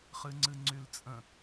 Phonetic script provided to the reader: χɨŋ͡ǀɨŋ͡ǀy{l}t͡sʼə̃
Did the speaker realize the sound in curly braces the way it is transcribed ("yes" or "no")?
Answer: yes